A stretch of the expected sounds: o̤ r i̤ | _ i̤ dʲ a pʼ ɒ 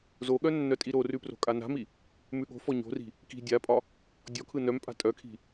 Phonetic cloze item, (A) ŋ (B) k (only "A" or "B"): B